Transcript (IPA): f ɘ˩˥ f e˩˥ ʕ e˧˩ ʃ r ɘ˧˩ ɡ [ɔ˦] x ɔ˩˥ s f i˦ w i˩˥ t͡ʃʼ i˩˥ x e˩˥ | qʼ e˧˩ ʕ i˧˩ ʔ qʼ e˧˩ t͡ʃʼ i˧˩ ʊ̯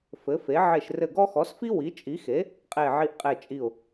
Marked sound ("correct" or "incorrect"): correct